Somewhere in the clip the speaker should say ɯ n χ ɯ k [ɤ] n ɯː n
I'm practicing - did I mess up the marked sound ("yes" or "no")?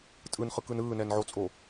yes